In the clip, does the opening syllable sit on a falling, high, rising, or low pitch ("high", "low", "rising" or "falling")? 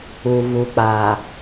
low